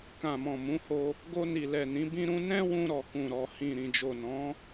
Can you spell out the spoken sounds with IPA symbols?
kã˨mɔ̃˨mũ˨˦ho˧ | ɡo˧ni˨lɛ˨nĩ˨˦ bĩ˧ɾũ˧ nɛ̃˦wũ˧ ɾɔ˨ kũ˨ɾɔ˨hĩ˨ ɾĩ˨d͡ʒo˨nɔ̃˨˦

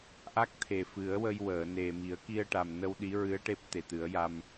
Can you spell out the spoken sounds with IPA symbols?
ʔa˦˥k̚t̪ʰe˨˩ fɨ˨˩˦ə̯ wə˧jwəː˨˩˨ne˨˩ mi˨˩˦ə̯ki˧ə̯ʈa˨˩mnə˧w ɗi˧˥ɹɨ˧˥ə̯ ʈe˦˥p̚t̪e˨˩t̪ɨ˨˩˦ə̯ja˧m

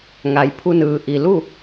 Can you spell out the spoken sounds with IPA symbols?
ŋa˩˧jpʰu˧nɯː˩ ʔi˩lu˥˨

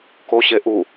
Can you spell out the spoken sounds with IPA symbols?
koɕe ʔu

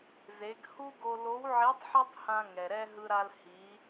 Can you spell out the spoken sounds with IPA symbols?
ze˩˧ɡ hu˥ɡo˧ lo˧˥wʕi˧˥tˤħɛ˥tˤhã˧ ŋɛ˩ɾɛ˥ ɦɯ˧ɾa˧l hi˩˧

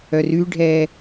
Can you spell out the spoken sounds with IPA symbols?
œryɖʱɛː

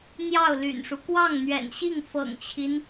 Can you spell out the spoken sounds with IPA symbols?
n̪jɑ˥˩ʊ̯ly̰˨˩nʂu˦ kwɑ˥˩ŋn̪ɥɛ̰˨˩nɕi˥˩ŋ fɤ̰˨˩ŋt͡ɕʰi˦n

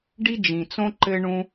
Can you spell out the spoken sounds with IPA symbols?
ɖi˦d͡ʒĩ˨t͡sõ˦ ǃɘ˦ɳũ˦

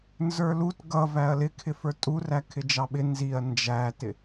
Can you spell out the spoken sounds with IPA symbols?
nzə˞lut ɡʌ væɐ̯lɪkʰɪ fə˞tʼurækʰɪ d͡ʒɑɓɪ nziɐ̯ nd͡ʒætɪ

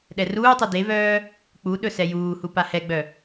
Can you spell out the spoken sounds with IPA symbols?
ɗɛruːtˤœ devœː | k͡pu ɗɵsɛjuːhu pahɛɡ͡bœ

